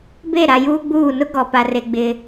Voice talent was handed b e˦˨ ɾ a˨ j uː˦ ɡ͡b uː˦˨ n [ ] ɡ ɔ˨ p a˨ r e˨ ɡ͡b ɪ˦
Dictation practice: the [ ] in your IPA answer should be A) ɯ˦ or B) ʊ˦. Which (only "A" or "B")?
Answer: B